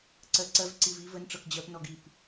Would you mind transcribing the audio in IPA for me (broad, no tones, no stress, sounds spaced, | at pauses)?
ǀ ɜ ǀ ɜ v ǀ i v i v ə n ʈ͡ʂ ɤ k d͡ʑ ɜ p n ɔ ɡ i p